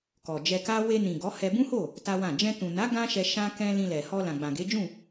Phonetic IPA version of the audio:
k ɔ˨ d͡ʒ ɛ˧ k a˦ w e˧ n ĩ˨ ɡ ɔ˨˦ h ɛ˧ b ũ˦ h o˦˨ | t a˦ w ã˦˨ d͡ʒ ɛ̃˧ t ũ˨ n a˨˦ ɡ ã˦ ʃ ɛ˧ ʃ ã˦ k ɛ̃˦ l ĩ˧ l ɛ˨ h ɔ˧ l ã˨ ɡ͡b ã˨ ɡ e˨˦ d͡ʒ ũ˦˨

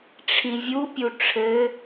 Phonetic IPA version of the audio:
ʈ͡ʂʰ ĩ vʲ u pʲ u ʈ͡ʂʰ ɘ

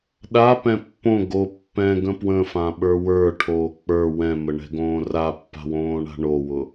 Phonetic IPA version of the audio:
ɗ a p ɛ̃ pː õ ɡ o pː ɛ̃ ɡ ə̃ p w ə̃ f ã ɓ ə˞ w ə˞ ʈʰ oː k͡p ə˞ w ɛ̃ m ə ɳ ɛ̤ ɡ õː r a pː a̤ w õː ɳ a̤ ɳ o w ʊ

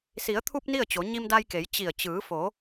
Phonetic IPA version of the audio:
s i˩˧ ə̯ t̪ʰ u˧ p̚ n i˥˨ ə̯ t͡ɕ o˩˧ ɲ i˧ m d a˧ j k e˩˧ j t͡ɕ i˧˩ ə̯ t͡ɕ ɯː˩˧ f o˩˧

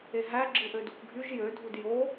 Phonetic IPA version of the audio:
e ɦ æ ɡ͡ǁ ɯ ʔ ø d u k ɡʱ y ʒ j ø dʱ u d j o

